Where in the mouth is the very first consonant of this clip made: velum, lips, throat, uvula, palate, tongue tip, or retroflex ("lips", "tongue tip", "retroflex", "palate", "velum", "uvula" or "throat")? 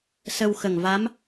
tongue tip